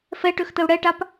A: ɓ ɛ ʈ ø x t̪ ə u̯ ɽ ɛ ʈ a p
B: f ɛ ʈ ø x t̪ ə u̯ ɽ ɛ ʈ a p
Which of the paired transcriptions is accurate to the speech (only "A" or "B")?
B